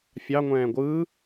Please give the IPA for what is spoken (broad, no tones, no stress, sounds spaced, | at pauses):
fʲ ɑ ŋʷ ɛ̃ː ɡʷ ɯː